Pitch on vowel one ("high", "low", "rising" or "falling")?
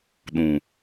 low